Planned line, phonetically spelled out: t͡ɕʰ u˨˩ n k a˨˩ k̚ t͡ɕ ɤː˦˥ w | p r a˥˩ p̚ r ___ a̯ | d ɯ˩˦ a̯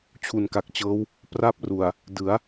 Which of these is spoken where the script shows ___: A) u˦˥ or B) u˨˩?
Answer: B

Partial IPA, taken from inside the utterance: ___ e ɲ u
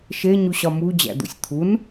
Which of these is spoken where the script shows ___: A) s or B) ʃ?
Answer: B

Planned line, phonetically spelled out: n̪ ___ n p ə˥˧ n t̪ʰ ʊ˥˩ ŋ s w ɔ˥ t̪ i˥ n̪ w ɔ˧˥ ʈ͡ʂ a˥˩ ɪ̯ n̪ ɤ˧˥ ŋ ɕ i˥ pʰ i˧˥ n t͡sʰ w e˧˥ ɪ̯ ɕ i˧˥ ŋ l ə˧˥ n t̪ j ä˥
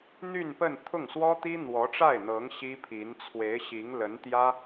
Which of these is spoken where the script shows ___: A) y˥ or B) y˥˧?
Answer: B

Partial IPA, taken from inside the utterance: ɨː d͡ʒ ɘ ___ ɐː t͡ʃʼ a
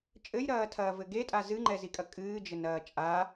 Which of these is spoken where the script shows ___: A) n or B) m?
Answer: A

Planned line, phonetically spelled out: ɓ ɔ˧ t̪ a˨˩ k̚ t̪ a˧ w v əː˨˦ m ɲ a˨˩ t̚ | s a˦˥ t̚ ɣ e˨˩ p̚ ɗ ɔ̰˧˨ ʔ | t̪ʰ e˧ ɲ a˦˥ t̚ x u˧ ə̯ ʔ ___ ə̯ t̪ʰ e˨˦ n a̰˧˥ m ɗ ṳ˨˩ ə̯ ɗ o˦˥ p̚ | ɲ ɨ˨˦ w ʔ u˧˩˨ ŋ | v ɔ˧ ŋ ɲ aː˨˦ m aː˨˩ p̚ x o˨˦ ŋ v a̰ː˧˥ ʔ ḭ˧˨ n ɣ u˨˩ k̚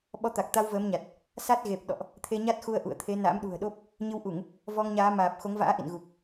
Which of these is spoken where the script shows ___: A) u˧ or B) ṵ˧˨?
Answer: B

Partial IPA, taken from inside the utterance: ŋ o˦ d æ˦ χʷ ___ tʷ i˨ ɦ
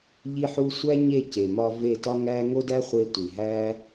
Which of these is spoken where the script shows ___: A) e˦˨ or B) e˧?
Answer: B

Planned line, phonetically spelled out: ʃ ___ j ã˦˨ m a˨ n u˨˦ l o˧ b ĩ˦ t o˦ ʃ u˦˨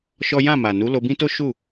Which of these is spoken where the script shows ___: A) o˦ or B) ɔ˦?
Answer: B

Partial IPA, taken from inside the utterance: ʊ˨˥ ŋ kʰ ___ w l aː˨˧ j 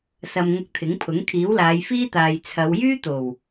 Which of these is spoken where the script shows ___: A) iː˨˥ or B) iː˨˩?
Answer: A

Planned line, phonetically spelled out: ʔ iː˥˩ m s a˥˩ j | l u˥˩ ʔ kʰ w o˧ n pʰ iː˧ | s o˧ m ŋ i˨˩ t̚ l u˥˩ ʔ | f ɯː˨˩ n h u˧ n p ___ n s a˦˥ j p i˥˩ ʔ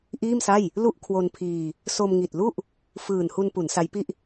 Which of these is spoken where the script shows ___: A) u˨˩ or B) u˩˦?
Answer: B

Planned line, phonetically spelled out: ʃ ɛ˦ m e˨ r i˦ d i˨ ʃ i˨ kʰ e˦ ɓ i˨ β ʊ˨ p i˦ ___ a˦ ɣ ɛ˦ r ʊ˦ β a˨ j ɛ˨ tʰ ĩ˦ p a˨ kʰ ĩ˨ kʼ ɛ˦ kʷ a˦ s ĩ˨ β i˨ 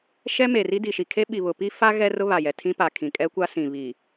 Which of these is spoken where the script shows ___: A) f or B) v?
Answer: A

